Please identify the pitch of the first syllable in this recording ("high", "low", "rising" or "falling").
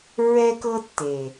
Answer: high